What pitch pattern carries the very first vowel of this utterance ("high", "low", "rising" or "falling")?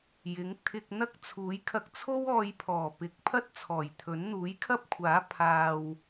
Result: rising